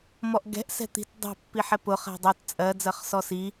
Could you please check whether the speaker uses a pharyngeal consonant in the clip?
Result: yes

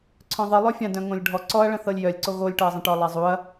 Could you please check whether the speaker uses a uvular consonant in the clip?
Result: no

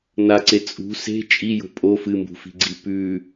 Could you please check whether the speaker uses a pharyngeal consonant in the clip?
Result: no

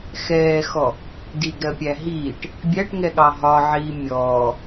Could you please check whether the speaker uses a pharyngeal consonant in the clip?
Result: yes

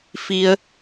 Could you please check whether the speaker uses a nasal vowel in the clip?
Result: no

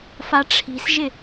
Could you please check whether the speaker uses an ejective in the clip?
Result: no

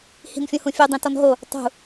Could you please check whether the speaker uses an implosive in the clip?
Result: no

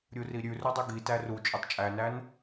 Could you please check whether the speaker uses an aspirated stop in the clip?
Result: no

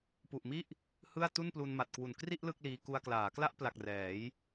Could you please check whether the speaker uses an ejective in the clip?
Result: no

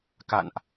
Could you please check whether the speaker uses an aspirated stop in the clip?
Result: no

